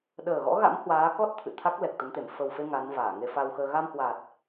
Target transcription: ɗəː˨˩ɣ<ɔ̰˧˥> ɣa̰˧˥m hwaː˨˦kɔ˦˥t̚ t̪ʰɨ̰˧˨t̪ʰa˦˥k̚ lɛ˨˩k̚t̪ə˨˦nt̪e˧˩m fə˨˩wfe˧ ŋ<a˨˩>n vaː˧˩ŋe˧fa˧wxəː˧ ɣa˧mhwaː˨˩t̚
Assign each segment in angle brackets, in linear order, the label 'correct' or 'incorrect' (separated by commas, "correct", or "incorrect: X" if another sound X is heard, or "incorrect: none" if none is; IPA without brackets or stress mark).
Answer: correct, incorrect: a˨˦